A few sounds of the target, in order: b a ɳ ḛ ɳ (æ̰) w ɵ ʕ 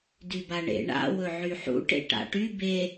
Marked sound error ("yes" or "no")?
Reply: yes